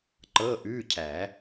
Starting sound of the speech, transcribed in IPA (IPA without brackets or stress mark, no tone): ǃ